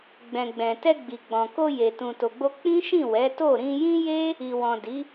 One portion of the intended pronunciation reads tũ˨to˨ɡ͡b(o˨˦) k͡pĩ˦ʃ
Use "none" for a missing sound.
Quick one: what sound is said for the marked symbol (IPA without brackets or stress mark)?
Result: o˧